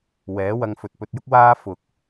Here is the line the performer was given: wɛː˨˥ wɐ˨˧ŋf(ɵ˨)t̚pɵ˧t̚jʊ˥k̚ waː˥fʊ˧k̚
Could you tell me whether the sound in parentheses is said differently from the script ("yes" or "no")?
no